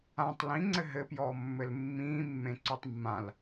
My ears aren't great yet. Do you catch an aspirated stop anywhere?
no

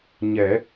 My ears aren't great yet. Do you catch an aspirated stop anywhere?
no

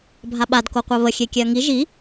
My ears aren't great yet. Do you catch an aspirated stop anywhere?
no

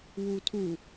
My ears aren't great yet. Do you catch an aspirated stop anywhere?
yes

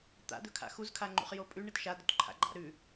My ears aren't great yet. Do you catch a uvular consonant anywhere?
yes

